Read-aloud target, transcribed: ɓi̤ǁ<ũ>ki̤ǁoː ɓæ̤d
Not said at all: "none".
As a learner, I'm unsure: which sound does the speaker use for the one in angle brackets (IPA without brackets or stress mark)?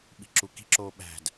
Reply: u